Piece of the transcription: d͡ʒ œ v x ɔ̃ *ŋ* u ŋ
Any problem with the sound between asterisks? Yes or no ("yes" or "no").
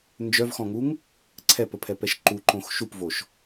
no